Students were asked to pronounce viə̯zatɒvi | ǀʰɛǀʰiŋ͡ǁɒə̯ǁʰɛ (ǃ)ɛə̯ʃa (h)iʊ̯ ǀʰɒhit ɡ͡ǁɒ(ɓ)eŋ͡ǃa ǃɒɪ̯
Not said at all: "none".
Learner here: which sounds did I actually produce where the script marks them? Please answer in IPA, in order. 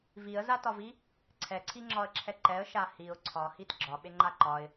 ǃ, h, ɓ

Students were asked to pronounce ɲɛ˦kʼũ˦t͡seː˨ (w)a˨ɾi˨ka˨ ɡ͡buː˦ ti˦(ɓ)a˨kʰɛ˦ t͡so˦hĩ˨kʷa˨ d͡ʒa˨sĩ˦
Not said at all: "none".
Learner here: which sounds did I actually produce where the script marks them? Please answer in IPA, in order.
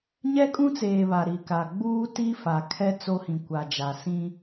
β, f

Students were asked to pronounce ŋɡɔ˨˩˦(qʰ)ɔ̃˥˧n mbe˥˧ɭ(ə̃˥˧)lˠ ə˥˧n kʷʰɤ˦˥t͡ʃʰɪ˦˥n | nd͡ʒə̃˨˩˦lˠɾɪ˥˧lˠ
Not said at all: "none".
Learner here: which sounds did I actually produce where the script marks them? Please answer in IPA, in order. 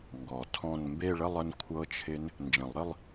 tʰ, ə˥˧

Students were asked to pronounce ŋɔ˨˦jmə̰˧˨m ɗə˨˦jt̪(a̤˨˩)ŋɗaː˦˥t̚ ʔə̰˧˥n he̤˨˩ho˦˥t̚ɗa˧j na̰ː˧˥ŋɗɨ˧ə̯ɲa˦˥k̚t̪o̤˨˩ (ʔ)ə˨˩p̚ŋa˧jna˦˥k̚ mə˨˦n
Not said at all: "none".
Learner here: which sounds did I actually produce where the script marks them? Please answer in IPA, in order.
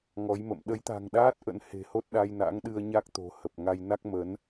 a̤˨˩, h

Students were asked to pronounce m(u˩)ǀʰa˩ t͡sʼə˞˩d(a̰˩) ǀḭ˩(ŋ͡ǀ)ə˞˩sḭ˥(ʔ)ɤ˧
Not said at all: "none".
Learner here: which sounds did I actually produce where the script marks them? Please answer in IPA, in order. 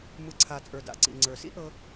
ɯ˩, a̰˩, ŋ͡ǀ, ʔ

